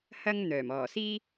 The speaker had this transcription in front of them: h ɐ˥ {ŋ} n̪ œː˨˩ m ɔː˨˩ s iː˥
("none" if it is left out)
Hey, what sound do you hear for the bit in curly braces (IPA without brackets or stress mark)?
ŋ